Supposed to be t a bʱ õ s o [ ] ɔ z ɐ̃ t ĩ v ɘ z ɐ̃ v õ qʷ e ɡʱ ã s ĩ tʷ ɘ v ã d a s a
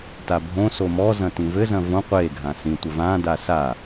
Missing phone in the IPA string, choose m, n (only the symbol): m